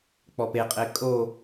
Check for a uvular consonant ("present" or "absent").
present